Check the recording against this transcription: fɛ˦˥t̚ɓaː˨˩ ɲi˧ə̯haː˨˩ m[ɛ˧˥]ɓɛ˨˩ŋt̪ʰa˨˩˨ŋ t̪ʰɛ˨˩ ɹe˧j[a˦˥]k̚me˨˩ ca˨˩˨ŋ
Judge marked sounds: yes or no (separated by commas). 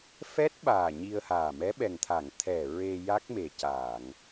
yes, yes